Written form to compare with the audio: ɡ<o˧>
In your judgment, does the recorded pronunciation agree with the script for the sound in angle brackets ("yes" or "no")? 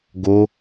yes